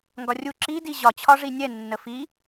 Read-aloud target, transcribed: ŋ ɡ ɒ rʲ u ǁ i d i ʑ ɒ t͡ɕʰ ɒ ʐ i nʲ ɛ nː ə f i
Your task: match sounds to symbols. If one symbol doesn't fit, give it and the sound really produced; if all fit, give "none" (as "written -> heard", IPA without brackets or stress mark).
none